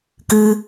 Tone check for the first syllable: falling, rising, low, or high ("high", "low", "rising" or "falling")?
high